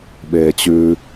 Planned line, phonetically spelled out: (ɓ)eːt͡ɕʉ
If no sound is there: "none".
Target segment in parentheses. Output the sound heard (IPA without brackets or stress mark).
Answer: ɓ